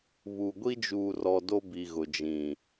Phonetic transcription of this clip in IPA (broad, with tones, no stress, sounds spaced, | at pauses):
β u˨ ɡʷ i˦ d͡ʒ uː˨ r ɔ˨ d o˦ b i˨ ɣ ʊ˨ d͡ʒ ĩ˨